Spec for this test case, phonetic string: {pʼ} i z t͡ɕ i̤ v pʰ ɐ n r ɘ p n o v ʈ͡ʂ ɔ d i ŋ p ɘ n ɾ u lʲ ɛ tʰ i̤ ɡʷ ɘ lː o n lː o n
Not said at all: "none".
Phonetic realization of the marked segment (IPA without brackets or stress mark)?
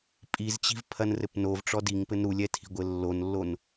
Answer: pʼ